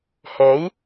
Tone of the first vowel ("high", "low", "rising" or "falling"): rising